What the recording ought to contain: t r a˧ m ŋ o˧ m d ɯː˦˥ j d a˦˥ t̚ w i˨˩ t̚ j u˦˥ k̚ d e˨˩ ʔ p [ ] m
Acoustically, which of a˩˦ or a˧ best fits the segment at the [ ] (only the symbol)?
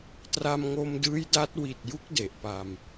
a˧